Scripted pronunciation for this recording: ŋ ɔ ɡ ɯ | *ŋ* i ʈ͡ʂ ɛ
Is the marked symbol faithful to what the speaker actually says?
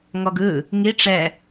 yes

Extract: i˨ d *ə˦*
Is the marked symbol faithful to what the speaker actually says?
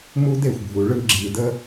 yes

